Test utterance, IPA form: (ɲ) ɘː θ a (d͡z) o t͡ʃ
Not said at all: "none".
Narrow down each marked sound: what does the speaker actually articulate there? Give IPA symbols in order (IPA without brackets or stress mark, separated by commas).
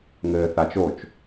ŋ, t͡ʃ